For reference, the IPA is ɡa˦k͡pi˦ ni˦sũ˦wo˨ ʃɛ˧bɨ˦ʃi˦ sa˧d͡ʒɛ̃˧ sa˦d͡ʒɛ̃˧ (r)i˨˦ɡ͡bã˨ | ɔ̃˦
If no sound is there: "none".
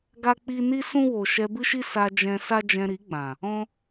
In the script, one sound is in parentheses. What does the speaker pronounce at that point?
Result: ɾ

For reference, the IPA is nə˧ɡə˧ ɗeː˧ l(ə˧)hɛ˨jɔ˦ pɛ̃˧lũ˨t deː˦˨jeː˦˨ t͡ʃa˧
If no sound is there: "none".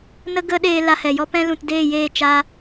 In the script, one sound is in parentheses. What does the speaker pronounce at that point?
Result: a˧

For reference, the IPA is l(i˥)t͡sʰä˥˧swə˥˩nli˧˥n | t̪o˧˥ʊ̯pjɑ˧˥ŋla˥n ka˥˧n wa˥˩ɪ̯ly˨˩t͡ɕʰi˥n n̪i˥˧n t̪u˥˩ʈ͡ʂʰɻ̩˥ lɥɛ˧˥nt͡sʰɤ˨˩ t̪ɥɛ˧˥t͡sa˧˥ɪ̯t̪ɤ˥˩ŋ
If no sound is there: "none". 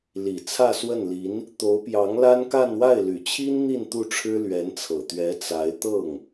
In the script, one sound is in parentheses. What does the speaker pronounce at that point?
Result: i˨˩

